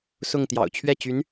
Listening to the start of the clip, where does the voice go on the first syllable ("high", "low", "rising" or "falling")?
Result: falling